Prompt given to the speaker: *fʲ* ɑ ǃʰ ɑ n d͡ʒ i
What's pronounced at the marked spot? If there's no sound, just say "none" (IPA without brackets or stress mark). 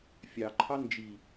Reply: fʲ